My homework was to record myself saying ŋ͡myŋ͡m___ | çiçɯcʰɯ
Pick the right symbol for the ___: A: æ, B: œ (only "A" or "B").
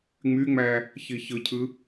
A